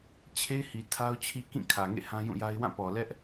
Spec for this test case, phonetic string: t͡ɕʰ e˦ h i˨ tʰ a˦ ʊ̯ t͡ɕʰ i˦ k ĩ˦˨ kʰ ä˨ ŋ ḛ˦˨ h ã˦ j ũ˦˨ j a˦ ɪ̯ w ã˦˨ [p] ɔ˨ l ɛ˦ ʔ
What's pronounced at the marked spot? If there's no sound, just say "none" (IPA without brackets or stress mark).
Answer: p